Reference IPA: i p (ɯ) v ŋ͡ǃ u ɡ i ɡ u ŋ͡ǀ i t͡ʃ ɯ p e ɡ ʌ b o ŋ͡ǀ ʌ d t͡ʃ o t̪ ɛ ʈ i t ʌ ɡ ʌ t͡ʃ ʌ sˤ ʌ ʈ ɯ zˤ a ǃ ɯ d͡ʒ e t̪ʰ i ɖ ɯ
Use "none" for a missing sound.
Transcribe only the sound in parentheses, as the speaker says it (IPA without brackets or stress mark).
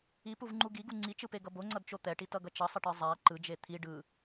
u